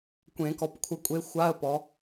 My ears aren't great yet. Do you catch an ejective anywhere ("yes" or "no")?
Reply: yes